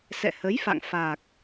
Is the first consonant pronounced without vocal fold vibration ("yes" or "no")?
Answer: yes